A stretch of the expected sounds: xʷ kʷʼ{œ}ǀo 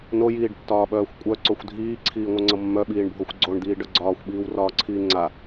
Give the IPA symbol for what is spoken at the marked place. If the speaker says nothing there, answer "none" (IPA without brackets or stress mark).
œ